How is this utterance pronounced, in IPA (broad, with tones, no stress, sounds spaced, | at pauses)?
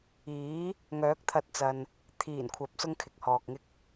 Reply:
iː˨˥ | ŋ œː˨˥ k̚ t̪ʰ ɐ˧ t̚ t͡s ɐ˨ n | t̪ʰ iː˨˩ n kʷʰ ɐ˨ p̚ s ʊ˥ ŋ kʰ ɪ˨ k̚ h ɔː˨ k̚ ŋ ɪ˥ k̚